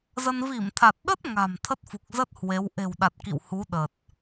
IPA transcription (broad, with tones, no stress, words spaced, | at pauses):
zə˧n vi˧˩mt̪ʰa˨˩t̚ɗə˦˥t̚ ŋa̤˨˩m t̪ʰə˦˥t̚fu˨˩k̚zə˦˥t̚ hwe˨˦w ʔe̤˨˩wɗa˨˩t̚ kḭ˧˨w hu˨˦ɗə˨˩t̚